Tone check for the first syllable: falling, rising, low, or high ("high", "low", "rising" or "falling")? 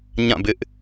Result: falling